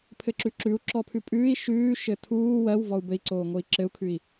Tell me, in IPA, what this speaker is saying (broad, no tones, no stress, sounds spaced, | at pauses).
pʰ ɘ ǁ ʉ ǁ ʉ u̯ ǁ ɔ pʰ ʉ pʼ ʉː i̯ ʃ ʉː ʃ ɘ tʰ uː w ɜ w v ɔ u̯ b ɘ i̯ ǀ oː ŋ o i̯ ǁ ɘ u̯ kʰ ʉ i̯